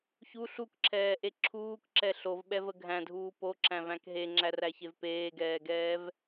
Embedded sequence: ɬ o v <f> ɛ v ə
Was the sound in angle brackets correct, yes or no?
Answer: no